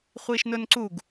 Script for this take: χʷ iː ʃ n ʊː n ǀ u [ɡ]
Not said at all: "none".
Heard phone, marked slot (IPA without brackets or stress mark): ɡ